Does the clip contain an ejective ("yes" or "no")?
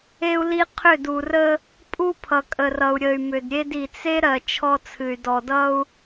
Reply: yes